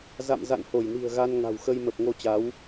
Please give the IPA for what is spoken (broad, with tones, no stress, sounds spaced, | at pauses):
z a̰˧˨ m z a̰˧˨ n h o˧˩ j n i̤˨˩ ə̯ ɣ a˧ n ŋ a̤˨˩ w x ə˧ j m ə˨˩ p̚ ŋ o˧ t͡ɕ a˨˦ w